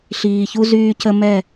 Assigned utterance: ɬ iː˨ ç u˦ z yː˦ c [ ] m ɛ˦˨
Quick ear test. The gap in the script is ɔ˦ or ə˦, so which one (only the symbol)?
ə˦